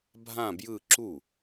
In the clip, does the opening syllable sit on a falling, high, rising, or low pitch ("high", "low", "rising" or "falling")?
falling